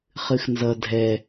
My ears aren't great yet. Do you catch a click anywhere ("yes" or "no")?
no